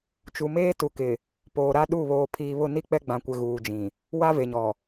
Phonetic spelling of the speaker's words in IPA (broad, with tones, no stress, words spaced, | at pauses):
t͡ʃu˨meː˦ tu˨kɪ˨ | poː˨ɾa˦ ɗu˦˨βoː˨ pʰiː˨βʊ˦˨ni˦ k͡pɛ˦ɡ͡bã˨kʷɪ˨ ɣuː˨d͡ʒĩ˨ | wa˦ve˨ɲɔ˨